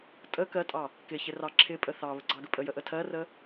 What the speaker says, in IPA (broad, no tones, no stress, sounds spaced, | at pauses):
tʼ ə k ɜ tʼ ɑ | k ɪ ç ɪ r ɑ ǁʰ ɪ pʼ ə θ ɑ β ə ɡ͡ǀ ɑ ɡ ə pʼ ə j ə ʔ ə tʰ ɜ r ə